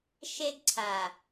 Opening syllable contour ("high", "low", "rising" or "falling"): high